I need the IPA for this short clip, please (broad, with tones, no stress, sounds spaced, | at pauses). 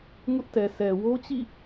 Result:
ŋ ʊ˦ ʔ t ɛ˨ sʰ ɛ˨ w o˦ t͡ɕ ḭ˦˨